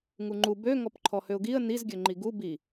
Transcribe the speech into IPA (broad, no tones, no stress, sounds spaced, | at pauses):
ŋ u ŋ͡ǃ u b ø ŋ ɔ p ǃʰ ɔ h ø ʊ̯ ɡ i ə̯ n i z ɡʲ ø ŋ͡ǃ i ɡ u b i